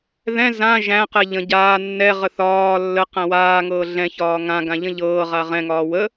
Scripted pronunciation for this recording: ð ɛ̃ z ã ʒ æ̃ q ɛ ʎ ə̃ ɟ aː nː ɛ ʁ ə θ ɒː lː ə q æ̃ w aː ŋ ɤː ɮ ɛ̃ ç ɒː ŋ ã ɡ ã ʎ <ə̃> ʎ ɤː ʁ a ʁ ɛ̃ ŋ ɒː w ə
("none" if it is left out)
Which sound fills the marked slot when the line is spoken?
ə̃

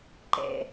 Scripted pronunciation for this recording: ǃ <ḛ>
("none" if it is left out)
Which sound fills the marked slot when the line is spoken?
ḛ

